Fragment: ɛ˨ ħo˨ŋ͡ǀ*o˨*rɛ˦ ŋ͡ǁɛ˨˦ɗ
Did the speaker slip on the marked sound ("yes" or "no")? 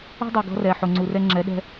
yes